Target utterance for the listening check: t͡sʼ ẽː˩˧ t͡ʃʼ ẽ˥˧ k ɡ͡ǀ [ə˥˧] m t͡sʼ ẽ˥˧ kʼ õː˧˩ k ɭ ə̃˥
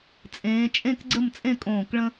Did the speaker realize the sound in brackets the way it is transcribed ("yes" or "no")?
yes